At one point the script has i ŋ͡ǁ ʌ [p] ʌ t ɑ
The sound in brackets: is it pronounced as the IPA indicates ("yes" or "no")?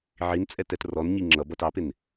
no